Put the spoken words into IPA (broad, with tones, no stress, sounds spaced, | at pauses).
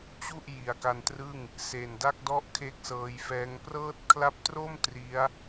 t͡ɕ u˥˩ ʔ j i˨˩ a̯ k a˧ n t r ɯ˥˩ ŋ | s e˨˩ n d a˥˩ k̚ d ɔ˥˩ ʔ kʰ e˦˥ k̚ s ɤː˧ j f ɛː˦˥ ŋ p r ɤː˦˥ t̚ kʰ l a˦˥ p̚ t r o˥˩ m t r i˦˥ a̯